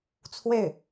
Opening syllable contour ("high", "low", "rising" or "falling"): falling